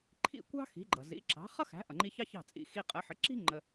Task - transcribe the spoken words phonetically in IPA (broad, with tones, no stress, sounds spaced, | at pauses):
ǃʰ ḭ˥˩ kʷ ɑ̤˥ x i̤˩˥ ɡ͡ǃ ʌ˩ z ḭ˩˥ ǁ ɑ̤˩˥ χ ʌ˥ x æ̤˩˥ ʔ ʌ˩ ŋ͡ǃ i˧ ç ɑ˥ ç ɑ̤˥˩ t͡sʼ ḭ˧ x i˧ qʼ ə˩˥ ħ ə˩˥ ǁ i̤˥ ŋ͡ǃ ə˧